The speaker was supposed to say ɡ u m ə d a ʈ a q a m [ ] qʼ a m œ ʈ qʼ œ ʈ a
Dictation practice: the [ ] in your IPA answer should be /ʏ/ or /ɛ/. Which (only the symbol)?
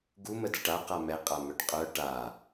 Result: ɛ